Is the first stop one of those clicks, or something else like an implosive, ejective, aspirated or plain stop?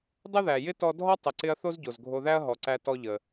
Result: plain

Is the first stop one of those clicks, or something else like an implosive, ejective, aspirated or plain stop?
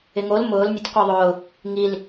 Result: plain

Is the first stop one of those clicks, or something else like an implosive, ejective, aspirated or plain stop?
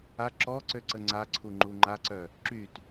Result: click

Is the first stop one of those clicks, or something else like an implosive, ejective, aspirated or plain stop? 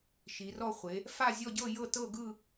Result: plain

